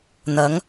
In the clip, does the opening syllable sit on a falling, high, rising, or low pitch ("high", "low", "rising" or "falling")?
rising